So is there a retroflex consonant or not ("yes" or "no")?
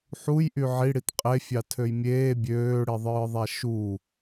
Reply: yes